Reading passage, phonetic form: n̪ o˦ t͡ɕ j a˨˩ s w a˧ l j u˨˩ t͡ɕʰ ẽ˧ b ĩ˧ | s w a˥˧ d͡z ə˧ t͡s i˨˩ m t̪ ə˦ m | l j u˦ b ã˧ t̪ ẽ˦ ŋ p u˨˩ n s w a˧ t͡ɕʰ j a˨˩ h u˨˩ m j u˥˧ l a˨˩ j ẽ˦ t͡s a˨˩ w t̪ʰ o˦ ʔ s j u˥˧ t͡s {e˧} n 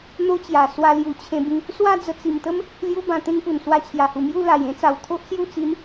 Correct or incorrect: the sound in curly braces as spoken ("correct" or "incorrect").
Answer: incorrect